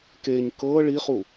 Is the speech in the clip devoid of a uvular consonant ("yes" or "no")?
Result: no